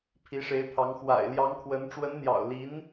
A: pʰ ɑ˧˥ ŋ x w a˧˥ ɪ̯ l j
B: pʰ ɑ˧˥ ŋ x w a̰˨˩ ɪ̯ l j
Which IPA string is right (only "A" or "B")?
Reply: B